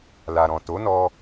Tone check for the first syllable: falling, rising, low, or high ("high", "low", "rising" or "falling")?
low